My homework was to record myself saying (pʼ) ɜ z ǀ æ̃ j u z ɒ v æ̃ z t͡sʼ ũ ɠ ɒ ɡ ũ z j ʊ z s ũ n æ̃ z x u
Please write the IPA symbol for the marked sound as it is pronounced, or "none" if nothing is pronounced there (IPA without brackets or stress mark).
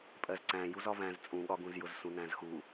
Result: pʼ